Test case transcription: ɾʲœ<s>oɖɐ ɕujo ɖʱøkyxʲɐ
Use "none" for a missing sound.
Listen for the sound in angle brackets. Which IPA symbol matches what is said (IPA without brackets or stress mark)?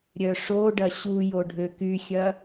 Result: ʂ